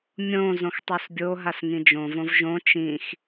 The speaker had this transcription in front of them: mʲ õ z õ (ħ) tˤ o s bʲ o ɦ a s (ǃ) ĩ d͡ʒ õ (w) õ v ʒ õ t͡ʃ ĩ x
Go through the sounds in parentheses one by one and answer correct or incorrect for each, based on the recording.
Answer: incorrect, incorrect, incorrect

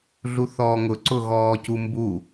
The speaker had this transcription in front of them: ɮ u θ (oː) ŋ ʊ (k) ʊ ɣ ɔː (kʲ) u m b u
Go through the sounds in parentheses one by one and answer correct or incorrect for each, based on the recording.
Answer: incorrect, incorrect, incorrect

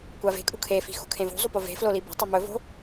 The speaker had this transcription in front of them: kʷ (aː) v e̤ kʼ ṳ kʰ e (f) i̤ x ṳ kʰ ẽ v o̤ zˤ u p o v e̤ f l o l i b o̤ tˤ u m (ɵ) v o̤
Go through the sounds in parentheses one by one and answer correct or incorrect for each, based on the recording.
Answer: incorrect, correct, correct

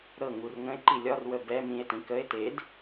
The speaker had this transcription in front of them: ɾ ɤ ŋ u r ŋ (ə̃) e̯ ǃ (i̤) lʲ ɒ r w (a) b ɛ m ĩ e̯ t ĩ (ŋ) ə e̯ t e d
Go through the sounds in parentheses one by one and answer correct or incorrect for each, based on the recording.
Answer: correct, incorrect, incorrect, incorrect

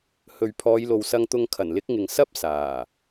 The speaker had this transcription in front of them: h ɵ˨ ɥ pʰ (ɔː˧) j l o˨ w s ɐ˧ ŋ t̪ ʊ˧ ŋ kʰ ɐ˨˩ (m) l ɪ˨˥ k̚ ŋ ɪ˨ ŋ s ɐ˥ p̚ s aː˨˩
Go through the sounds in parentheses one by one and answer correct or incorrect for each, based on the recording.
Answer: incorrect, incorrect

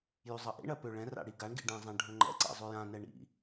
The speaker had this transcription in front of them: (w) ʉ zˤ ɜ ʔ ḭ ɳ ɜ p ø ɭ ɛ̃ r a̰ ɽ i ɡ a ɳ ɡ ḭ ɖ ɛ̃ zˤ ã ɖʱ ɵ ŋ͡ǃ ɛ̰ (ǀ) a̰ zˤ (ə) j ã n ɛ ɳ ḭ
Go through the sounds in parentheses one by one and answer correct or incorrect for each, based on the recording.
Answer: incorrect, correct, incorrect

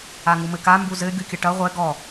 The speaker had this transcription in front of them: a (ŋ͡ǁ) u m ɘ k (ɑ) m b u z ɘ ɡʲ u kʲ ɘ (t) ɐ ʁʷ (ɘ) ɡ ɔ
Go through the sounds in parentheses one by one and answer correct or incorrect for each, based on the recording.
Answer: incorrect, incorrect, incorrect, incorrect

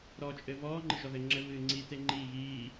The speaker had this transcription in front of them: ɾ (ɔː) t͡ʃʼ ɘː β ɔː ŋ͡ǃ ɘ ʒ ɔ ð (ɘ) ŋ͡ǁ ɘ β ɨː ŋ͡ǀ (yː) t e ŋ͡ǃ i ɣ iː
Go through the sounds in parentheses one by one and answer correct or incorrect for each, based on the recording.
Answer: correct, correct, incorrect

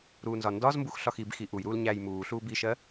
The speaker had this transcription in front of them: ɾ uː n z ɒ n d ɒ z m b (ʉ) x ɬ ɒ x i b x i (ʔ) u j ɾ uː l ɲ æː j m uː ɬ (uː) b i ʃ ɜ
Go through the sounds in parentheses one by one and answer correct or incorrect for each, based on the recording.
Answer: incorrect, correct, correct

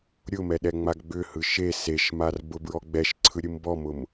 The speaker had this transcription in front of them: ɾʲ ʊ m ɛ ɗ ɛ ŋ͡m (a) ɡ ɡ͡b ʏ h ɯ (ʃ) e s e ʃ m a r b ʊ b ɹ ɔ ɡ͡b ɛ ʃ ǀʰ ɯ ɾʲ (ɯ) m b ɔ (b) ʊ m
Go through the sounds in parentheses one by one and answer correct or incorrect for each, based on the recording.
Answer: correct, correct, correct, incorrect

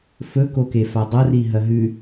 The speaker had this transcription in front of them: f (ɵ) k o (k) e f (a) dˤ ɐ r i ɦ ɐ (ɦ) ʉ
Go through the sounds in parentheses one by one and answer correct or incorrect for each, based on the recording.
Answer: correct, correct, correct, correct

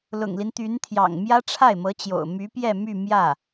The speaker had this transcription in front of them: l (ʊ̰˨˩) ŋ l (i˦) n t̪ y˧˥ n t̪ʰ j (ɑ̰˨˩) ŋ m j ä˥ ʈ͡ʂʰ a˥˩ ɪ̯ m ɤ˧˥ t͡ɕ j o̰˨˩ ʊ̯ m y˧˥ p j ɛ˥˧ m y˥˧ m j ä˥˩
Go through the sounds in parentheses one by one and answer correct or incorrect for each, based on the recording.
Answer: correct, correct, correct

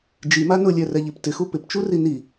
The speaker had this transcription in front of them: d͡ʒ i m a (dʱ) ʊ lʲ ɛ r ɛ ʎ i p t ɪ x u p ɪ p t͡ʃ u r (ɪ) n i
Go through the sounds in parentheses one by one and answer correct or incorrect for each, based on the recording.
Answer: incorrect, incorrect

